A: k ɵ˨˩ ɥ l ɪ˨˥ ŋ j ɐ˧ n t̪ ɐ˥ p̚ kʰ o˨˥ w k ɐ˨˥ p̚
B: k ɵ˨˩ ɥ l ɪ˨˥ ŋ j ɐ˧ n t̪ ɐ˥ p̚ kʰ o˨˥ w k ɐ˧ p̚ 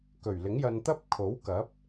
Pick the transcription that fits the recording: A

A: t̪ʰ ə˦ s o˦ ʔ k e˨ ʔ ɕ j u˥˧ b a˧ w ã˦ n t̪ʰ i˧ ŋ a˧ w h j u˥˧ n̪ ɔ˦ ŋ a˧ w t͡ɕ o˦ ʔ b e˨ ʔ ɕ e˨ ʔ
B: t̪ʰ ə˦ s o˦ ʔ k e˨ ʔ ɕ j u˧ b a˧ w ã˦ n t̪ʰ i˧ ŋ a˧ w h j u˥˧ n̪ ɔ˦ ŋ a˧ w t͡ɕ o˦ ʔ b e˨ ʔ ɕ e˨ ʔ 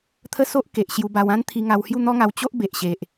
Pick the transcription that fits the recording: B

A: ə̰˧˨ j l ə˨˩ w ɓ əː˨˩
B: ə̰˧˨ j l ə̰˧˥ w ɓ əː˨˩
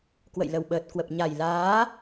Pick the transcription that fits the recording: A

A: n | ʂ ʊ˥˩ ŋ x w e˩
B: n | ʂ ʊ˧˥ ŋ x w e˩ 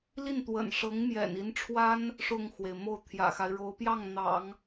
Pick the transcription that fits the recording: A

